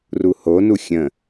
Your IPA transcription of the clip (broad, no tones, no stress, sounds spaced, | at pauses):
r u h o n u xʲ ə̃